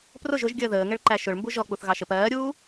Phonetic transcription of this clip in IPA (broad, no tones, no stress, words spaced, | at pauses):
prʊʒ ʊʒ ɡʲəːðəːŋɛɭǃæ ʃʊɭmbu ʒɔk͡puθ ɣɑʃəp ɜːɾʲuː